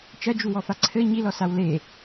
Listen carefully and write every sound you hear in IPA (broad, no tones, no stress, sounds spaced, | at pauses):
t͡ʃ ɐ d͡ʒ u w ɔ f a ǀʰ ɘ ɲ i l ɔ s a w l e